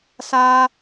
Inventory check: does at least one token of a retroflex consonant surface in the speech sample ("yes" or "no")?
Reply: no